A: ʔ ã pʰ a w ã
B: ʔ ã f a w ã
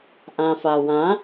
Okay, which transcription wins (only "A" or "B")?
B